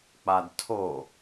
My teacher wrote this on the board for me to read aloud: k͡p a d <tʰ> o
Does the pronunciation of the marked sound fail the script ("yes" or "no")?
no